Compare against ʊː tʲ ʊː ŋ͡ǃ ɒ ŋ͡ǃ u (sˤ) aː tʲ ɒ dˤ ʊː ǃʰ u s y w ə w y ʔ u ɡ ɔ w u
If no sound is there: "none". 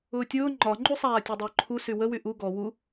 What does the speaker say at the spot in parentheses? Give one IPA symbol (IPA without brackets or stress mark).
sˤ